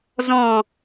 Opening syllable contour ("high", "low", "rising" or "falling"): falling